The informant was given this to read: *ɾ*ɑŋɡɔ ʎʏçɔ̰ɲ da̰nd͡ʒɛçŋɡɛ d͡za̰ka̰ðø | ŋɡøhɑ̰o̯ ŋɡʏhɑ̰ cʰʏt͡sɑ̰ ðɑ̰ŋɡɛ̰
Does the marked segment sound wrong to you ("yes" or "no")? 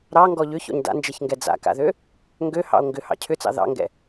no